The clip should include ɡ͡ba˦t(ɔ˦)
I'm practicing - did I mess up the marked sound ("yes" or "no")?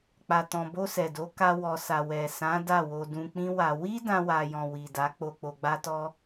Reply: no